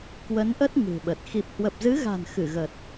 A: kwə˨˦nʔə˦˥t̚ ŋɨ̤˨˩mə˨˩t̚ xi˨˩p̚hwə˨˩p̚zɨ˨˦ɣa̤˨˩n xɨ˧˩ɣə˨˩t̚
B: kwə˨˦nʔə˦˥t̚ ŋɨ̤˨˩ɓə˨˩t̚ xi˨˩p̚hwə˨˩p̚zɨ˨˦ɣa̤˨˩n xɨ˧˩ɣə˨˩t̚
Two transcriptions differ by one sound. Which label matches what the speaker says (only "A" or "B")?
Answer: B